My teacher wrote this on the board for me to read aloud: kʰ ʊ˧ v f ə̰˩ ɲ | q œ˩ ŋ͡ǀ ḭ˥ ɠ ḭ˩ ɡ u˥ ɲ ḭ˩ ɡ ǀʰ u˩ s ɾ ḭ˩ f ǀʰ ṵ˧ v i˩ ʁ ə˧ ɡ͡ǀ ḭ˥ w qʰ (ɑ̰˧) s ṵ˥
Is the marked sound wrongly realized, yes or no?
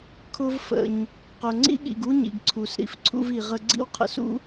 yes